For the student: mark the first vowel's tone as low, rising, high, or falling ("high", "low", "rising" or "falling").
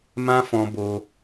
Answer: high